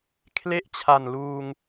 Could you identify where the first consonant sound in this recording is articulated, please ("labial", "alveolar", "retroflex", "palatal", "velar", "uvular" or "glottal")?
velar